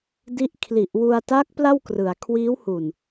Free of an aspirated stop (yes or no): no